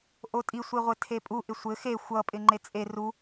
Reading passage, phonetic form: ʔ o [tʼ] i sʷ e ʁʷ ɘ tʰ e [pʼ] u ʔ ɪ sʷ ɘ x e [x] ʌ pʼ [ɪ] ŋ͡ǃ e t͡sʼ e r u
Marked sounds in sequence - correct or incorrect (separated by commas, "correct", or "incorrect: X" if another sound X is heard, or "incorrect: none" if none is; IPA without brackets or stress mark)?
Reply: correct, correct, incorrect: xʷ, correct